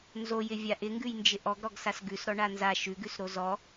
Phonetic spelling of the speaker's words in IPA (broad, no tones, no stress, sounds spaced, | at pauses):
n z o j ɪ vʲ a ʔ ɪ ŋ ɡ ʉ j n d͡ʒ ɪ ʔ ɔ ɡ ɾ ɔ ɡ s a s ɡ ʉ s ɾ ɔ ɳ a n z a ʃ ʉ ɡ ʉ s ɾ o z ɔ